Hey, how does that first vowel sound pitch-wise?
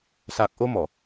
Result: low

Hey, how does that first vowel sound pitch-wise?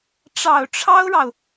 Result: low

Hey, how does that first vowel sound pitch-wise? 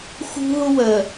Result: high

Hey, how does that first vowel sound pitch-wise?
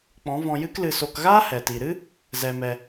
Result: rising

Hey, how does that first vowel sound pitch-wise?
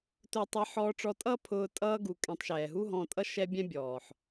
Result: high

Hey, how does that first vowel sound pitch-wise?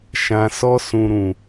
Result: low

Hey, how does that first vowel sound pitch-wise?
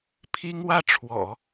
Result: high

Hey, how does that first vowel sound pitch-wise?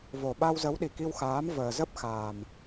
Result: low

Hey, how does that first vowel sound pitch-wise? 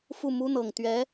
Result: falling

